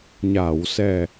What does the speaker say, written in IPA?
ɲ a˨˩˨ w s ɛ˨˩

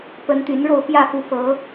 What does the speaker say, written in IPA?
p ə˨˦ n t̪ y˨˦ n ɻ o˥˨ ʊ̯ p j ä˥˨ f u˨˦ f ɤ˨˦

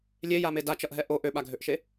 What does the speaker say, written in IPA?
lʲ e j a m e d a t͡ʃ ʌ ʔ ɦ ɛ ʔ o ʔ ø ɓ a ɡʱ ø ʔ ʃ e

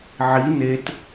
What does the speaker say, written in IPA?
ʕ i n e t

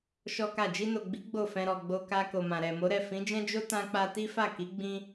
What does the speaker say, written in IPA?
ʃ ɔ˦ k a˦˨ d͡ʒ i˧ n o˨ ɡ͡b i˨˦ ɡ͡b o˦˨ f ɛ̃˧ ɾ ɔ˨ ɡ͡b o˧ k a˧ k o˨ m ã˨ ɾ ɛ˨ m o˨˦ ɾ ɛ˦˨ f ĩ˨˦ d͡ʒ ɛ̃˦ d͡ʒ o˦ t ã˧ k͡p a˧ t i˦ f a˦˨ k i˨˦ ɡ͡b ĩ˦

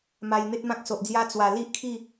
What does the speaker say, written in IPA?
m a˧ j n̪ e˦ t̚ m ã˦ k̚ s o˨ ʔ d͡z j a˦ t͡s w a˨˩ l i˦ ʔ kʰ i˥˧

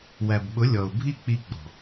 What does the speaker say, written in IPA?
w æ˨ b ɓ ʊ˨˦ lʲ ɔ˨ ʊ̯ bʱ i˦ k͡p i˧ ɡ͡b ɔ̤˨

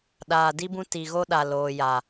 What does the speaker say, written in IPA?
ɗ aː˨ d i˦ b ũ˦ t i˨ ɣ o˦ ɗ a˨ l oː˨ j a˨

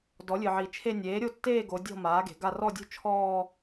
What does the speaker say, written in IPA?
d ɔ˩˥ lʲ ɨ˩ ʕ i˩ t͡ʃʰ e˥˧ nʲ eː˩˥ ɾʲ o˥˧ tː eː˥˧ ɡ o˩˧ dʲ ɔ̤˥˧ m aː˩˥ ɡ e̤˩ ɡ a˥˧ r ɔ˥˧ dʲ ṳ˥˧ t͡ʃʰ ɔː˥˧

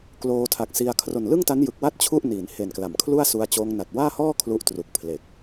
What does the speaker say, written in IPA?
k l oː˧ tʰ a˨˩ k̚ s i˧ a̯ kʰ r o˨˩ n l ɯ˥˩ ŋ t a˦˥ n j ɯ˨˩ k̚ w a˥˩ t̚ t͡ɕʰ u˥˩ ʔ n iː˩˦ n h e˨˩ n k l a˩˦ m kʰ l u˥˩ a̯ s u˧ a̯ t͡ɕ oː˧ ŋ n a˨˩ t̚ w aː˥˩ h ɔː˥˩ kʰ l u˦˥ ʔ t r u˨˩ k̚ pʰ l e˨˩ k̚

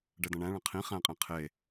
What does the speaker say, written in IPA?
ɖ ɛ d ɐ̃ ɳ æ̃ ɭ ɐ̃ qʰ ĩ χ æ̃ qʼ ẽ qʰ e

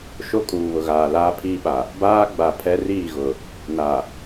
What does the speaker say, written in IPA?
ʃ o˦ kʼ uː˨ β ʊ˨ ɣ aː˨ l aː˦ pʰ iː˦ ɓ a˨ | b aː˦ ɡ͡b a˨ pʰ ɛ˦ r iː˦˨ ɣ ʊ˨ | n a˨

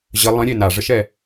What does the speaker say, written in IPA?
ʑ ə lˠ ə̃ ɾʲ e n a ʐ ə ʃ ɛ

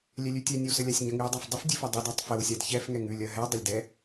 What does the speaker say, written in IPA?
lʲ ɛ lʲ ʉ tʲ ɛ nʲ ɛ w s ə lʲ a sʲ ɲ ə ŋ ʉ w dˤ a f dˤ ə f dʲ ʉ f ɐ dˤ ʉ d a tˤ f ə w sʲ a d ç ɛ f ŋ ɛ ŋ ʉ lʲ ɐ ɦ ɛ dˤ ɐ lʲ d ɛ

